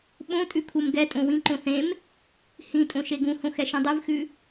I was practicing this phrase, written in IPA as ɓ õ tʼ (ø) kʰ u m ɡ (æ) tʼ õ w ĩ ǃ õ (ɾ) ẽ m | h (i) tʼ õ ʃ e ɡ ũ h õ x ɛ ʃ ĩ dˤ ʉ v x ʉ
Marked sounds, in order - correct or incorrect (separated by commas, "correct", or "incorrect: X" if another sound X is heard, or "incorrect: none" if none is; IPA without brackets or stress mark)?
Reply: incorrect: ʉ, incorrect: ɛ, incorrect: θ, incorrect: ĩ